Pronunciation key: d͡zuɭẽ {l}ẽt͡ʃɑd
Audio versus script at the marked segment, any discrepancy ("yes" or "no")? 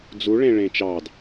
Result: yes